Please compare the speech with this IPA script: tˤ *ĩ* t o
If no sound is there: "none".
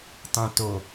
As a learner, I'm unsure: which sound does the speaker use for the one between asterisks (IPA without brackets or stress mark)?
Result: ĩ